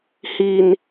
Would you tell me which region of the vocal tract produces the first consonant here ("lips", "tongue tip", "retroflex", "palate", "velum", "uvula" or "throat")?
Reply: throat